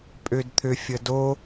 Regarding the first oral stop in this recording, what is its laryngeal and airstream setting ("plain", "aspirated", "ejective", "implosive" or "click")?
ejective